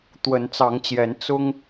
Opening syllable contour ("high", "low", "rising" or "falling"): rising